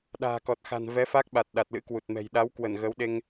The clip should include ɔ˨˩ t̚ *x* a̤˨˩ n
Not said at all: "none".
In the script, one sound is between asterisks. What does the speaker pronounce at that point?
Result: x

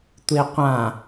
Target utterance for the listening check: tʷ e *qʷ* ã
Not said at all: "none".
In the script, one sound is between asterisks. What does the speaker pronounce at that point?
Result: qʷ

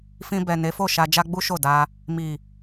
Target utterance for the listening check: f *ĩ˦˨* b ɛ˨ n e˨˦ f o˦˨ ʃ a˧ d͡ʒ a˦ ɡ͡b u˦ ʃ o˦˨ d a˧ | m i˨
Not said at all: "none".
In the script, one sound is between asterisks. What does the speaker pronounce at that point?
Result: ĩ˧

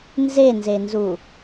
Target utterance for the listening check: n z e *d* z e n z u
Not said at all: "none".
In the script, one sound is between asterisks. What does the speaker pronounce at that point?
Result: n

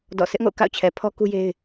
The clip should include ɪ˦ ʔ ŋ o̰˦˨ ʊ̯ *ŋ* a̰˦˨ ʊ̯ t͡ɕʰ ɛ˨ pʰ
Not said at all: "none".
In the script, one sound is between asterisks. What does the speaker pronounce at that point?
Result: k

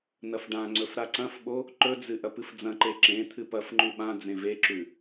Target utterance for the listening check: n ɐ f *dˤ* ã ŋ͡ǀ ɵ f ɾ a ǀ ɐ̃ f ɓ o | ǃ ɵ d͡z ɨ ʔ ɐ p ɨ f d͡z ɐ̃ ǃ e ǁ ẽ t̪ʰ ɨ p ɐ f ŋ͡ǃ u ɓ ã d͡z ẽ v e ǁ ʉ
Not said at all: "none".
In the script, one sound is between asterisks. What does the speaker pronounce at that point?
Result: ɖ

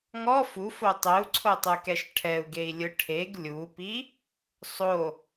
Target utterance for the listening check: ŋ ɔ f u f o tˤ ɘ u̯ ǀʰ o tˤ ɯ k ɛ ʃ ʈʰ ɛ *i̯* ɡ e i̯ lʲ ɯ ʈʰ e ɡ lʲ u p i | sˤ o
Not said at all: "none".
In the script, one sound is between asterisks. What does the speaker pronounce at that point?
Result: u̯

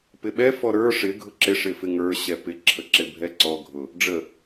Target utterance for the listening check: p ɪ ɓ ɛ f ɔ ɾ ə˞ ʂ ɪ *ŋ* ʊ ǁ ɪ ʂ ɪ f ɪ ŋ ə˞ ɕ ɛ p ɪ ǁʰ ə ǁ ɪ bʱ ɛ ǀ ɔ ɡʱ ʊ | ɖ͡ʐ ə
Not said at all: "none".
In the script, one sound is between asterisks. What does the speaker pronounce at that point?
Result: ɡʱ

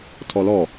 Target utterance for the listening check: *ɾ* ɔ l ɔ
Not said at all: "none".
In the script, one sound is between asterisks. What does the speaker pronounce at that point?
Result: tʰ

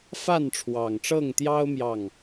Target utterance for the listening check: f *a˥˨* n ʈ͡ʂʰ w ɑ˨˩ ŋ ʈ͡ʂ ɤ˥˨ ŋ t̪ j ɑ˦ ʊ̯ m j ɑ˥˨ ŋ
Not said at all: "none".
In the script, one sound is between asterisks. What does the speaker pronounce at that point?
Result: a˥˨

